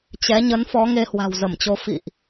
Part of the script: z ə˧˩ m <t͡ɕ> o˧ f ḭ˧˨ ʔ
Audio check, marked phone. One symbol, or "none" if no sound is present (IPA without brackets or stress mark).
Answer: t͡ɕ